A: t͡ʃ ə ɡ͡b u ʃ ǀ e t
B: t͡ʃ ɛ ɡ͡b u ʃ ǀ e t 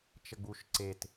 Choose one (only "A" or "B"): A